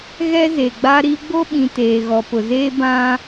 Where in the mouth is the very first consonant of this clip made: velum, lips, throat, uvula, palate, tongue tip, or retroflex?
velum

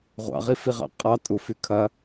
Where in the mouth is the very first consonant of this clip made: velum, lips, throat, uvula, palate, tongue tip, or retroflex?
uvula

